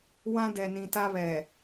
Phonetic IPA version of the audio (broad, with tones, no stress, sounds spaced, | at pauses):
w ã˦ d ɛ˨ n ĩ˨ t a˦ β ɛ˨